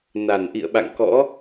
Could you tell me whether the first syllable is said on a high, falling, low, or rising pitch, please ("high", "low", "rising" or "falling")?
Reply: low